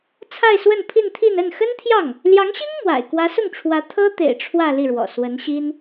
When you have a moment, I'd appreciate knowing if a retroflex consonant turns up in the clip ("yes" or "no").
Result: yes